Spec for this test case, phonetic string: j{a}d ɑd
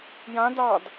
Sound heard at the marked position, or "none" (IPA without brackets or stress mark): ã